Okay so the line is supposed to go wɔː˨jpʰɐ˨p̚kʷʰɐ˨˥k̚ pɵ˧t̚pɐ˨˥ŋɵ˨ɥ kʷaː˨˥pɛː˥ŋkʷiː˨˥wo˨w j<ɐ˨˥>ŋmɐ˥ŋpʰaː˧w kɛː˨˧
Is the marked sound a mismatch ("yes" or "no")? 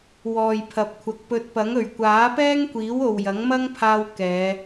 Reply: no